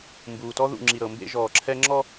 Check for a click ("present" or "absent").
present